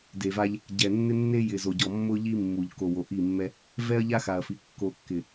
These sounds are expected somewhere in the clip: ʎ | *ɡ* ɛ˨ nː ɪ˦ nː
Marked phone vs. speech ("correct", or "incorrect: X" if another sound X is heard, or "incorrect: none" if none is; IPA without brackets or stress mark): incorrect: ɟ